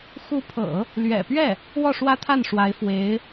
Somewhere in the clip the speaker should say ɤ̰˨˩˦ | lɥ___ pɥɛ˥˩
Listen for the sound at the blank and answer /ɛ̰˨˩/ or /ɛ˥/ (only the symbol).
ɛ̰˨˩